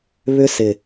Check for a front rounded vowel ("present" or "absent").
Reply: present